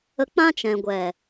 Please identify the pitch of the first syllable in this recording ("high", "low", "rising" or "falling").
high